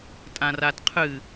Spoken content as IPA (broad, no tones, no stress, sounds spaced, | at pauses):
tʼ ã r a t qʰ ɨ